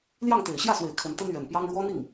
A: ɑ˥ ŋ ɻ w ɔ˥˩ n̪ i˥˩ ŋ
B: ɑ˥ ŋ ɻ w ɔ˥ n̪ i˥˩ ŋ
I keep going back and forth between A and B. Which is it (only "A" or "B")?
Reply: B